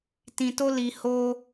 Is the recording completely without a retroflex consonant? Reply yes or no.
yes